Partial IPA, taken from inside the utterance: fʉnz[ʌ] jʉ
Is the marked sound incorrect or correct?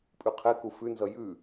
correct